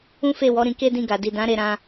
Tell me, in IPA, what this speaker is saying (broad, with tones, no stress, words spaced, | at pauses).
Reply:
ũ˦fe˦˨wɔ˨˦ ɾĩ˧ke˦ dĩ˦˨ɡa˨di˨ dã˨˦ ɾe˧ɾã˧